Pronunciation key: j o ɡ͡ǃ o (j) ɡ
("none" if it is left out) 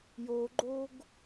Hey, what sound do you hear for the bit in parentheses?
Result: none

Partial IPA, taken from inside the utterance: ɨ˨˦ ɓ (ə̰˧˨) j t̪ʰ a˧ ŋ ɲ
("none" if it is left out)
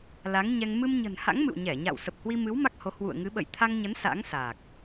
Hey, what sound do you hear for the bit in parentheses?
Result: ə̰˧˨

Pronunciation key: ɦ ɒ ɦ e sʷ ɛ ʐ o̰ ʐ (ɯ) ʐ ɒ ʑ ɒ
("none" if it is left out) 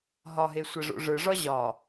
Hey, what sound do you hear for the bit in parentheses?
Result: ɯ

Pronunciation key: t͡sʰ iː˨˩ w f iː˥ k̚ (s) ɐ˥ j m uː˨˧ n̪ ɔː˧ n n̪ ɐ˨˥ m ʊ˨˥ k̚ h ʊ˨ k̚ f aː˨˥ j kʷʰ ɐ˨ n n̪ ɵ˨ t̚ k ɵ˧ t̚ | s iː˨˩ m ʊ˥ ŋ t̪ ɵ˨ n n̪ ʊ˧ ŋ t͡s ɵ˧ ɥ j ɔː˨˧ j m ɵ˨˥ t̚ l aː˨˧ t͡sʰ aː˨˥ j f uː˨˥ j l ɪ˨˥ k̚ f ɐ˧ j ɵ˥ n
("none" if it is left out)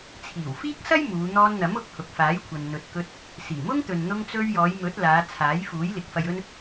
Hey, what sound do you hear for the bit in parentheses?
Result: s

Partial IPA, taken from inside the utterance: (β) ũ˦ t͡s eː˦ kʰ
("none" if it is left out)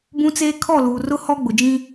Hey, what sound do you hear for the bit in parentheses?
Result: b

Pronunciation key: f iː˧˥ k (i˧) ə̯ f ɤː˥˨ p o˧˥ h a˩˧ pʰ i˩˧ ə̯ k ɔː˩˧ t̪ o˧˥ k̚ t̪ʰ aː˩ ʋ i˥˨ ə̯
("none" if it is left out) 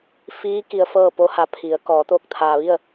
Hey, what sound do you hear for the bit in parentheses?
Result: i˧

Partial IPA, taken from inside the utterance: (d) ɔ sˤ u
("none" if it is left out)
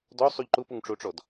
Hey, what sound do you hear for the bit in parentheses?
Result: d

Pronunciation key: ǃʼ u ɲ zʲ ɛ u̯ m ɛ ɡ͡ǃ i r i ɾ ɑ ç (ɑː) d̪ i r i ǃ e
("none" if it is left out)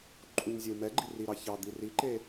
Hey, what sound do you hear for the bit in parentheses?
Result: ɑ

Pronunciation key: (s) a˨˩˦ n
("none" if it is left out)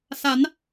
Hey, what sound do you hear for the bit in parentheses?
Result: s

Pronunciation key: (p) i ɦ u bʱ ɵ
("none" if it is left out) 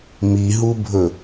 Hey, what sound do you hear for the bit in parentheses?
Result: m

